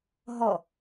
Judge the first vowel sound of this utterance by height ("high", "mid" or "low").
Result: mid